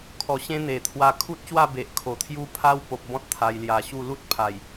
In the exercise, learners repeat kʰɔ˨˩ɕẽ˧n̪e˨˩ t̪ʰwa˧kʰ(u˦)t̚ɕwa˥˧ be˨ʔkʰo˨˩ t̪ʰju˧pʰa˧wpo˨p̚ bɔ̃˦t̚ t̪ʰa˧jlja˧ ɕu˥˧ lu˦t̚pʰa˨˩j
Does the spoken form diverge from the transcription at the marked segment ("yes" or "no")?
no